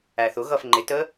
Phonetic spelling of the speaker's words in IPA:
æθʊɣʌf ŋ͡ǃɪtə

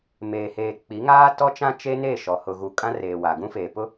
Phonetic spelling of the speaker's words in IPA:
meː˨heː˨ k͡pi˨˦ŋaː˦ tɔ˦t͡ʃã˦ t͡ʃe˦ne˦˨ ʃɔ˨ hʊ˨ɣu˨ kʼã˦reː˨ wa˨ ɡũ˦feː˨ pʊ˦

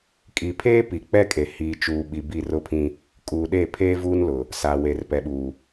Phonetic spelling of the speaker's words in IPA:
kʼi˨pʰeː˦ pi˨k͡pɛ˦kʼe˨ hiː˨ t͡ʃuː˨ ɓi˨bi˦˨rʊ˦pʰĩ˦ | kʼuː˨ɗe˦˨ pʰeː˦vuː˦nlʊ˨ | sa˨we˨r pɛ˨ɓuː˨

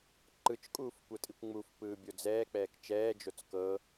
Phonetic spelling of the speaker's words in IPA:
ǃɯt͡ʃkʼuːf kʷɤtʼikʷŋ͡mufpɯː bʲod͡zɛːk͡pɛːk t͡ʃɛːd͡ʒot͡s kɤ

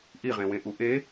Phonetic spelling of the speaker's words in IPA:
ʔiʁẽwẽʔu ʔe

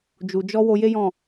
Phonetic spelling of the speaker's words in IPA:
d͡ʒu˨d͡ʒɔ˧ wo˧je˦jɔ̃˦˨

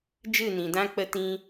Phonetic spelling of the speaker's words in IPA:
d͡ʒɨ˦˨nĩ˨dã˦ k͡pə˦tĩ˦

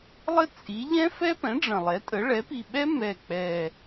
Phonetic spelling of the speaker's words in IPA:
lˠə˦˥ t͡sʼi˩˥ ʎɛ̃˦˥fɛ˦˥pɛ̃˩˥ ɖ͡ʐə̃˨˩lˠɛ˩˥tʼə˩˥ ɭɛ˩˥pi˨˩ɓɛ˦˥ mɛ˨˩k͡pɛ˨˩

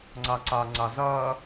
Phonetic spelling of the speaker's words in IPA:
ŋ͡ǀaǀa ŋ͡ǀazɐː

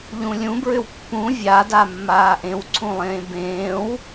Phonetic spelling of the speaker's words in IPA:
ʎũlʲũbɹʏw pːũ vʲada mːaːʔẽwǀʰũlˠẽː bẽːw

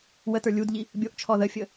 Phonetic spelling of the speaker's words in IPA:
wətə˞ lʲudʎi | bʲoʔt͡ʃʰɔ ðəfʲə

